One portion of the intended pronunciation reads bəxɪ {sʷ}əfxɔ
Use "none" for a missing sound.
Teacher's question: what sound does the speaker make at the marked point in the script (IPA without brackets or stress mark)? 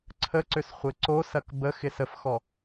s